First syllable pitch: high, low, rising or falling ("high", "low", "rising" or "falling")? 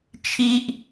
high